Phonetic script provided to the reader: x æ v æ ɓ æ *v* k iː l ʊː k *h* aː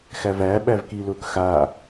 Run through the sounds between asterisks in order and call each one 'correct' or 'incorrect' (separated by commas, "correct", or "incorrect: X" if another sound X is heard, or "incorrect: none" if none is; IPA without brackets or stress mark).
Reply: correct, incorrect: x